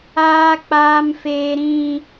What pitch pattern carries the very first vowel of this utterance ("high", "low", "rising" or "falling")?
high